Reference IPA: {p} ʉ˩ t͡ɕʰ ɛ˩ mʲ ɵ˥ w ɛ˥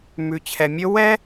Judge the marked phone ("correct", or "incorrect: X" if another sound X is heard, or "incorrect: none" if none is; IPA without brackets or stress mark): incorrect: m